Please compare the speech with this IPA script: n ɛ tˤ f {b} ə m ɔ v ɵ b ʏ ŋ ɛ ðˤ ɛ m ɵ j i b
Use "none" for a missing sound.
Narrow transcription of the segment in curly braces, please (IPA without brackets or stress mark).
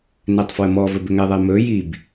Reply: w